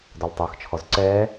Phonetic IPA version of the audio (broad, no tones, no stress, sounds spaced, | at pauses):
d ɔ l tˤ əː x t͡ʃʰ ɔ z ǀ ɛː